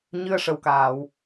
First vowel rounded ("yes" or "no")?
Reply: no